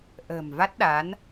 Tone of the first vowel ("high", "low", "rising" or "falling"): low